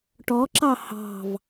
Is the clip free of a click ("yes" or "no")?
no